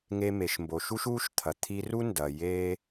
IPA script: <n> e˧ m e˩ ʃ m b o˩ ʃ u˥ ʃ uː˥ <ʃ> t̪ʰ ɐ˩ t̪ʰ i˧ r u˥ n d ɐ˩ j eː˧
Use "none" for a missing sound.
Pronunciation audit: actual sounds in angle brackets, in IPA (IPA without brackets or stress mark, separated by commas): ŋ, ʃ